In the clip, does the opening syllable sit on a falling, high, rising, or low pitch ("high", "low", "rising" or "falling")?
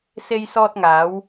high